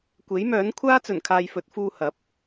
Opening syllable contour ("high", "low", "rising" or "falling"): rising